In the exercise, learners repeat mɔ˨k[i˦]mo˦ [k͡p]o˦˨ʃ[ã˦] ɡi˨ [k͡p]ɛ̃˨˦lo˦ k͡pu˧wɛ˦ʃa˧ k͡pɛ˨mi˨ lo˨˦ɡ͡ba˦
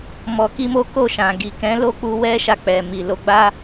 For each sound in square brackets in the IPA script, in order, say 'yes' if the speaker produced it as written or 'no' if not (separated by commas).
no, no, no, no